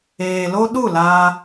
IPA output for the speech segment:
eː˨ l o˦ ɗ u˦˨ l aː˧

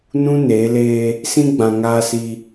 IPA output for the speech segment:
n ũ˦ n eː˨˦ l eː˦ | s ĩ˦ ɡ͡b ã˨ ŋ aː˦ s i˦

